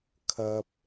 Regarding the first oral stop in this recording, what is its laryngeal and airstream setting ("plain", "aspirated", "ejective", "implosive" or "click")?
aspirated